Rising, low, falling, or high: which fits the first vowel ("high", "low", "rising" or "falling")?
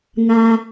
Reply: low